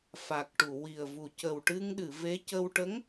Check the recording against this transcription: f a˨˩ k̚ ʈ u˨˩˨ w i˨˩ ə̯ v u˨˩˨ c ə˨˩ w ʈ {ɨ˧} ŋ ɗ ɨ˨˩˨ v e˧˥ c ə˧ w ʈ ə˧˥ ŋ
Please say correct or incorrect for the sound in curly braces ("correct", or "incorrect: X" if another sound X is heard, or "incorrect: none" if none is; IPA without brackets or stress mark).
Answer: correct